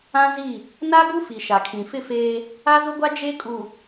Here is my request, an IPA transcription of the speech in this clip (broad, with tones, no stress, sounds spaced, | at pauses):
ã˦ z i˦˨ | n a˦ ɡ u˦ f i˨ ʃ a˨ kʰ ĩ˨ f ɪ˦˨ f eː˦ | a˦ z ʊ˦ ɡʷ a˦ d͡ʒ e˦ kʼ u˨